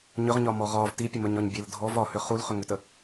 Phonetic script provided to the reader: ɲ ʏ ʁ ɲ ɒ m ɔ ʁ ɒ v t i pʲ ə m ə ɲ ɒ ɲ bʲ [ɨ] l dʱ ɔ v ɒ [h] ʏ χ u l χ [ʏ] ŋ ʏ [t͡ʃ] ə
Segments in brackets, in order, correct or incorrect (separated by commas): incorrect, correct, correct, incorrect